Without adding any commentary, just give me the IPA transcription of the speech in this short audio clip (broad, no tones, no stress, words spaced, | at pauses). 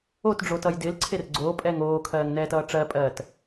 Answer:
otɖ͡ʐotʌj dɪːlǀʰer ɡ͡ǀoːpʼɛːŋ oːkʰɜːŋnɛːtʌː ʈ͡ʂɜpʼɜːt